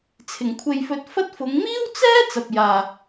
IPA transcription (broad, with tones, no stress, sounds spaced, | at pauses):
t͡sʰ ɪ˨˩ ŋ kʷʰ e˨ j f ɵ˨˥ t̚ f ɐ˥ t̚ f ʊ˨˧ ŋ m iː˥ w t͡s ɛː˥ t͡s ɐ˨ p̚ j aː˨